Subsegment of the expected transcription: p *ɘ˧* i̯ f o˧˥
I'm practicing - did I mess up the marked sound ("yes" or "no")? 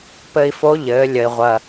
no